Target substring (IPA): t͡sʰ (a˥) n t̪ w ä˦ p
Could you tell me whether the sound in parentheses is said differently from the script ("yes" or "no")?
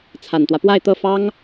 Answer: yes